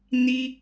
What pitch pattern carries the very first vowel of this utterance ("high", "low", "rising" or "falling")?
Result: high